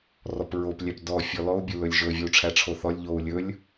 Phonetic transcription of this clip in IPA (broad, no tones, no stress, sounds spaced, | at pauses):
r ɔ p ɹ o p lʲ æ p d ɔ fʲ ɔ l ɔ u̯ bʲ ɵ l ɵ lʲ ʒ ɵ vʲ o u̯ ʈ͡ʂʰ æ ʈ͡ʂʰ o θ ɔ lʲ ʎ o u̯ lʲ ɵ lʲ